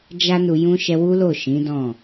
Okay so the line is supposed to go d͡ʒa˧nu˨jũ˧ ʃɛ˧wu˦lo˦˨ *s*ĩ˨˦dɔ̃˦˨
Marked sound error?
yes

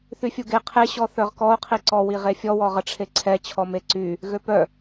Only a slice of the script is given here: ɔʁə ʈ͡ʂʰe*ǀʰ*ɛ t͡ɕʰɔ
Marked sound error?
no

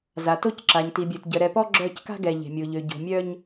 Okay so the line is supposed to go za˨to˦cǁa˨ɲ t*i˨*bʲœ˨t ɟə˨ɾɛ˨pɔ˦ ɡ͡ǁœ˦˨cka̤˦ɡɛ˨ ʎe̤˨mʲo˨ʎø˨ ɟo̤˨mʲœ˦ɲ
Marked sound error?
no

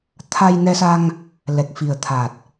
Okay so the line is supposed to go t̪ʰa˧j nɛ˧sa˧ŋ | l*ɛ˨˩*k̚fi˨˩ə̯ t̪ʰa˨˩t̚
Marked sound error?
no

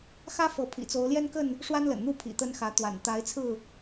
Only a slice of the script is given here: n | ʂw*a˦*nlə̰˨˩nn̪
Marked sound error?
no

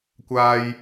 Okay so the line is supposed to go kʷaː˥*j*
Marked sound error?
no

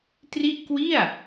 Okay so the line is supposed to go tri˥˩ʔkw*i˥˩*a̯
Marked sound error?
no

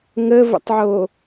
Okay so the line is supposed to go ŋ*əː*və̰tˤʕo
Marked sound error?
no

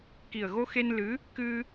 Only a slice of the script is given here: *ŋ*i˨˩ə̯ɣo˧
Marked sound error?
yes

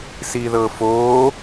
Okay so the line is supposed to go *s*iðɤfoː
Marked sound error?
no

